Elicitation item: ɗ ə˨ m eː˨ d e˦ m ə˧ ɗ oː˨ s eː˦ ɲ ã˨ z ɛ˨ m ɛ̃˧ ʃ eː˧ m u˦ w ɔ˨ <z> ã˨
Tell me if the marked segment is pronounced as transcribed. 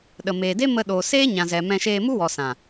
no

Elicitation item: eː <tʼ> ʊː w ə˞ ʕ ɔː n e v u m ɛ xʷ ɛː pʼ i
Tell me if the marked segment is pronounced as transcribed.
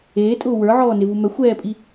yes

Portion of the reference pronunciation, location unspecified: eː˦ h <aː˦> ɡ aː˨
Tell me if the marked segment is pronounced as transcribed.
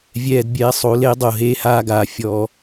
yes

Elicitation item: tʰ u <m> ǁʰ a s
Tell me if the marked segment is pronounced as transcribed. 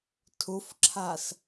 no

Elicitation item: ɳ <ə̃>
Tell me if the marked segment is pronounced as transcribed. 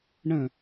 yes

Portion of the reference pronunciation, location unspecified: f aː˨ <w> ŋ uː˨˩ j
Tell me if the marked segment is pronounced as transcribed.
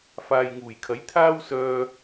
no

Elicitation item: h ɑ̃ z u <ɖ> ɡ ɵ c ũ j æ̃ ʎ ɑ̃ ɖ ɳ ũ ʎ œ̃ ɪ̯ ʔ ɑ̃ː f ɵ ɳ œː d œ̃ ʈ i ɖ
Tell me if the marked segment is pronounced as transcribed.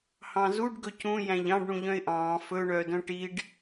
yes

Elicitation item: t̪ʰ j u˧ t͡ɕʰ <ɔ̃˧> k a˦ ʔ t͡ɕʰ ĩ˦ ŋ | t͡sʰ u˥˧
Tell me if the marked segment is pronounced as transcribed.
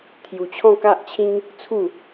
no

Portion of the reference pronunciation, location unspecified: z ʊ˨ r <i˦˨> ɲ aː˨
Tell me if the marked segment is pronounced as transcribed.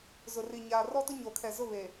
no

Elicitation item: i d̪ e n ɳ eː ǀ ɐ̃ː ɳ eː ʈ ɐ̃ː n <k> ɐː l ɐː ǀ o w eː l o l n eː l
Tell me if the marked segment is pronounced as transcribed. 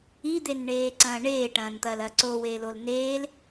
no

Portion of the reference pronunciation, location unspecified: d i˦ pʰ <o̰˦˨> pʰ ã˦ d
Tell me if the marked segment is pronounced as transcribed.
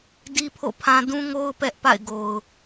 yes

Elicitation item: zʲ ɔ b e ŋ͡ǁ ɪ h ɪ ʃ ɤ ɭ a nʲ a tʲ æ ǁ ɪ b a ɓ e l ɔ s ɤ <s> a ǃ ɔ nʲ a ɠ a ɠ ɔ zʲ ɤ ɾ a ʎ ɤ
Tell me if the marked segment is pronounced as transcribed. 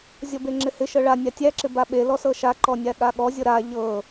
no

